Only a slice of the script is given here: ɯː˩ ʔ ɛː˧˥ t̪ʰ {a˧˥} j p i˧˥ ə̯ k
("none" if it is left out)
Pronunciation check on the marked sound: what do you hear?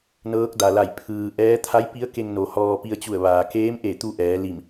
a˧˥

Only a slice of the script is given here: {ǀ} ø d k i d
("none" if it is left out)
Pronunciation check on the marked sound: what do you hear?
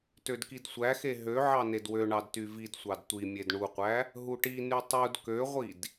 t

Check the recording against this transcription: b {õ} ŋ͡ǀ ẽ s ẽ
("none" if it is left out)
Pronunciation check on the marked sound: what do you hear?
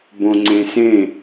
õ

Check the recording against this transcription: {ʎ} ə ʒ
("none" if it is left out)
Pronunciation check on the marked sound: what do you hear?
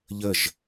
ʎ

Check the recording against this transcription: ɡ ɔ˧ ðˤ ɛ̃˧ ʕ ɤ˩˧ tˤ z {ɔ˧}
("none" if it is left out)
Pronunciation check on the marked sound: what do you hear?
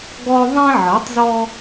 ɔ˧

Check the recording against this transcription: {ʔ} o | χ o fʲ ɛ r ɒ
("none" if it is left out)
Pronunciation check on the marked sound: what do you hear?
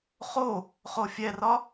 χ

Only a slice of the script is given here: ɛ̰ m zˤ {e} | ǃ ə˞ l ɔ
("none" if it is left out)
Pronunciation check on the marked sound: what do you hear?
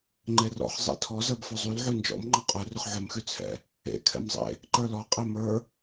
ḛ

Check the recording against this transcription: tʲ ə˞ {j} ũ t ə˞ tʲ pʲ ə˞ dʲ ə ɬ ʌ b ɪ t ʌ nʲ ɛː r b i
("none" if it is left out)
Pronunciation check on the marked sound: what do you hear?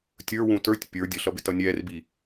w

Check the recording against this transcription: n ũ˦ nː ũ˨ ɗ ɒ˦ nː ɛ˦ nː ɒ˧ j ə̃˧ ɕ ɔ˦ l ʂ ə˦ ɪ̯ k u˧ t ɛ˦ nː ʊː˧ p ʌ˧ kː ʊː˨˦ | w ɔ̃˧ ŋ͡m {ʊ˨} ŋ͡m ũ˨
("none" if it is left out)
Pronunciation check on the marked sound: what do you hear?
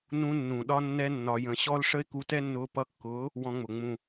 ʊ˨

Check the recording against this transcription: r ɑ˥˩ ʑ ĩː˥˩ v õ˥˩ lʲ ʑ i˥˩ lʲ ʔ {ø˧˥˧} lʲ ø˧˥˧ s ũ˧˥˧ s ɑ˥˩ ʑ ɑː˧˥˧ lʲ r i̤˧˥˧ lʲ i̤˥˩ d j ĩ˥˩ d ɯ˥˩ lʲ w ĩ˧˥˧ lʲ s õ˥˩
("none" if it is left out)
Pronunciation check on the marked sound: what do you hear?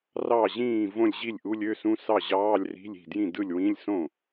u˧˥˧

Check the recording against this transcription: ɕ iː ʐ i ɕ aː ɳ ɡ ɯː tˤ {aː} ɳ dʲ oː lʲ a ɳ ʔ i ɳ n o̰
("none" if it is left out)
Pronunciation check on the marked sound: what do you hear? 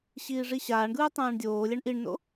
ãː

